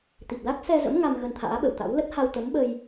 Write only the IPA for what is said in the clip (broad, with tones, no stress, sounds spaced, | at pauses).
t̪ i˨˩ p̚ l a˦˥ k̚ s ɛ˧ z ə̰˧˥ m ŋ a˧ m ɣ ə˧ n t̪ʰ a̰ː˧˥ ɓ ə̰˧˨ w t̪ a̰˧˥ w l ə˦˥ t̚ h a˧ w t̪ ə˨˦ m ɓ ə˧ j